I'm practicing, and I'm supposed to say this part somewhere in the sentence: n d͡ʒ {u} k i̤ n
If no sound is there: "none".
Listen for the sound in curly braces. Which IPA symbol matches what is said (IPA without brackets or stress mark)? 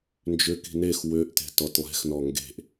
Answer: ʏ